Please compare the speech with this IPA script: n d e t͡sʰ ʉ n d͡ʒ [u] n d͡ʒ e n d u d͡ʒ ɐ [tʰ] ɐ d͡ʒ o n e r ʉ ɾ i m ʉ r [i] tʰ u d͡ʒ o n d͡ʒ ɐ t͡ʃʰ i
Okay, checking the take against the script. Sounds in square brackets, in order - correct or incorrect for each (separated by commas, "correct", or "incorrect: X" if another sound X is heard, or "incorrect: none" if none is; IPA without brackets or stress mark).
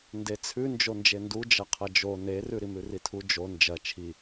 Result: incorrect: o, incorrect: qʰ, correct